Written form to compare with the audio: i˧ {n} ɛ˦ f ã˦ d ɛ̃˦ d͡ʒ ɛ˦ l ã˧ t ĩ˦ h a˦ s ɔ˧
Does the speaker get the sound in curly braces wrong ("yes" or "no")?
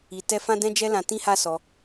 yes